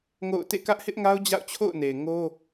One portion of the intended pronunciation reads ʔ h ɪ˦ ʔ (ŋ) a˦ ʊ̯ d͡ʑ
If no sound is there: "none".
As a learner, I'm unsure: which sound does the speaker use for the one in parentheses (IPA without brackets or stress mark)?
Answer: ŋ